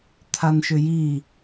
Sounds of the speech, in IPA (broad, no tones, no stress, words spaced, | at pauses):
t̪ʰanʃʏji